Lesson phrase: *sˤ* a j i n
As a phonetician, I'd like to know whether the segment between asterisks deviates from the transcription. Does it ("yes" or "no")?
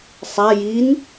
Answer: no